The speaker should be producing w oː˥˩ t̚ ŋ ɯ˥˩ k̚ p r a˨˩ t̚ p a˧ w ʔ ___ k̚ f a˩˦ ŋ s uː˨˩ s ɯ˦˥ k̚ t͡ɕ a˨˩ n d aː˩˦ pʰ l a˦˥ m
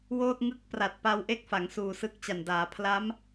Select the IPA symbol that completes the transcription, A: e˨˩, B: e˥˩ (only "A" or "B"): B